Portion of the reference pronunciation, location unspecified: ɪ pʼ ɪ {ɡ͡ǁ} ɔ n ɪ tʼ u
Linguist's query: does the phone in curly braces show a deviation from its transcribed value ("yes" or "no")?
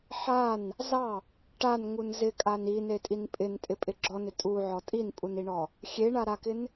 no